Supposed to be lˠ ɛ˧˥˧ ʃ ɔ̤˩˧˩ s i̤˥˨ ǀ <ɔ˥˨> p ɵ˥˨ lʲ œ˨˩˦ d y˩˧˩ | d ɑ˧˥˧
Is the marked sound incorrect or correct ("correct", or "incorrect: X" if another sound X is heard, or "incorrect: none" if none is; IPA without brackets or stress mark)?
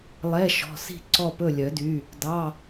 correct